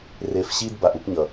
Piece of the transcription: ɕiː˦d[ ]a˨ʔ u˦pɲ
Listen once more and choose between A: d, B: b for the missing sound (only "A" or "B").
B